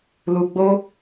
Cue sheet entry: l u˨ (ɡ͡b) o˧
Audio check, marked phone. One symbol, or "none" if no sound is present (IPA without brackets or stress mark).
ɡ͡b